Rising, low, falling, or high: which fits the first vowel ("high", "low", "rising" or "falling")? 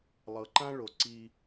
low